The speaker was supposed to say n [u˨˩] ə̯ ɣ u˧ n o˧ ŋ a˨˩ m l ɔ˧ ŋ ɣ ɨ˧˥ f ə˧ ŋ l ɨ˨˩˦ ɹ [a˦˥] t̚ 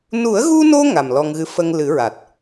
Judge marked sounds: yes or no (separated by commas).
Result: no, no